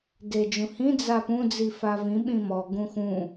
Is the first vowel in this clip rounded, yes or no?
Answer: no